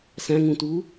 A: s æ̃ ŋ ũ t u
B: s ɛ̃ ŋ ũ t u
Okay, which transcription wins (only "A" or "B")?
A